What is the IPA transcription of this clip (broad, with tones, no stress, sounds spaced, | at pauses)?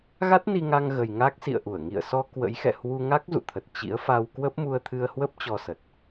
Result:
ɣ a˦˥ t̚ n i˧ ŋ a˧ ŋ ɣ ə˨˩ j ŋ a˦˥ k̚ s ḭ˧˨ ə̯ ʔ u˧˩ ə̯ ŋ ḭ˧˨ ə̯ s ɔ˧ k w ə̰˧˥ j x ɛ̰˧˨ h w u˧ ŋ a˦˥ k̚ z ṵ˧˨ t̪ʰ ə˨˩ t̚ t͡ɕ ḭ˧˥ ə̯ f a˧ w k w ə˦˥ p̚ m u˧ ə̯ t̪ʰ ɨ˧ ə̯ h w ə˦˥ p̚ t͡ɕ ɔ˧ s ə˨˩ t̚